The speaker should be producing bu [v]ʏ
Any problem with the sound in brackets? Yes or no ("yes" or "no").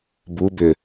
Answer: yes